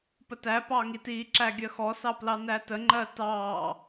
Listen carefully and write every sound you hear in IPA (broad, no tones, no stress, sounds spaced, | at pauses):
p ə t æ p ɑ ŋ i t i ǁ æ ɡʲ ɜ x ɔ s ɑ p l ɑ n æ t ə ŋ͡ǃ ɜ t ɑː